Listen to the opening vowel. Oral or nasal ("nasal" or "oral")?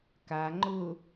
oral